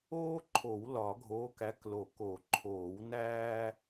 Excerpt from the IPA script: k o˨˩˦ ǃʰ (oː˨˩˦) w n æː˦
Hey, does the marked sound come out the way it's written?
yes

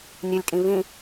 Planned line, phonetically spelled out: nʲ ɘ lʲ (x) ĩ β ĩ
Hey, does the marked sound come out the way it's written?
no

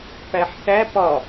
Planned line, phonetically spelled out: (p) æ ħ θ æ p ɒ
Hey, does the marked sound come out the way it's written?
yes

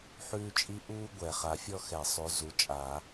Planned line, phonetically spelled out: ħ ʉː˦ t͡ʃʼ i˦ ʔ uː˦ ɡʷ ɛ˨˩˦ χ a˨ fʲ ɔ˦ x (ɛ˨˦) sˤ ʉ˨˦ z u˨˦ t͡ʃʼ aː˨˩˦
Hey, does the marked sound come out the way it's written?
no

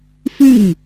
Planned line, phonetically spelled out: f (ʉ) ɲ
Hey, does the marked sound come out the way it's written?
yes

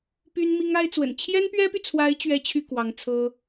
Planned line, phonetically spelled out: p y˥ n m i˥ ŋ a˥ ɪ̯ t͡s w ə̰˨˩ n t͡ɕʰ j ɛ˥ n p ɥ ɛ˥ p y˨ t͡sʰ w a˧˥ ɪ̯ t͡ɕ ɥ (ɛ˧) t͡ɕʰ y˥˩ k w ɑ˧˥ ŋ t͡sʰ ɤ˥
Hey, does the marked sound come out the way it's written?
no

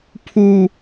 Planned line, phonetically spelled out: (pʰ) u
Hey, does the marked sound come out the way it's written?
yes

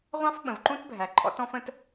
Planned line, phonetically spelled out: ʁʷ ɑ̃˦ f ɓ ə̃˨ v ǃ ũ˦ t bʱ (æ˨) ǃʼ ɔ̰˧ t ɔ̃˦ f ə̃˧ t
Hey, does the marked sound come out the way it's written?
yes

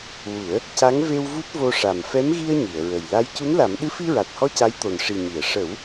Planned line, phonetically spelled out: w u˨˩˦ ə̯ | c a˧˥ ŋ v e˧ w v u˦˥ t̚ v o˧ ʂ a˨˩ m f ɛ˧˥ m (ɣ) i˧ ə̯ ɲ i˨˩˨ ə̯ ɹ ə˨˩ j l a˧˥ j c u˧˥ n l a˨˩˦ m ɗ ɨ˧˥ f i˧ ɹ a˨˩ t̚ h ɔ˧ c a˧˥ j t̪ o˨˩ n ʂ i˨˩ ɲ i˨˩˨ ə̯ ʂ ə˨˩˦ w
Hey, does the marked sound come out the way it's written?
yes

